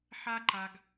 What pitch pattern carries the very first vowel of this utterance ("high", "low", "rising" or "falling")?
high